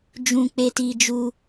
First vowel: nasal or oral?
nasal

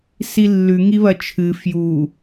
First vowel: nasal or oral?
oral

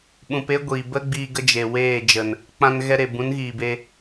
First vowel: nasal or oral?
nasal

